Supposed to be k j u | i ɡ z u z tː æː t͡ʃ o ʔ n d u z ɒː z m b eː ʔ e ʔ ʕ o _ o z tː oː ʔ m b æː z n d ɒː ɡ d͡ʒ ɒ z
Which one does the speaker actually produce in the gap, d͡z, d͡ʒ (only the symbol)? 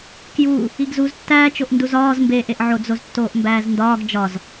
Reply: d͡z